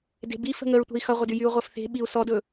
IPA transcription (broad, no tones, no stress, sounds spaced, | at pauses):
d e̤ b i f ə̤ ŋ ə ɹ tʷ ə̤ i̯ x ʌ ʁʷ ə d y j y u̯ ʁʷ ʌ f θ e̤ ɓ i u̯ s ɔ d ɵ